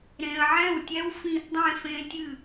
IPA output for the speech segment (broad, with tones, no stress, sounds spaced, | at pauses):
ɾ ẽ˨ ə̯ ʕ ɛ̃˥˩ w tʲ ɛ˦˥ w f ĩ˦˥ ʔ dˤ ẽ˥˧ f ẽ˦˥ tʲ ɨ˥˩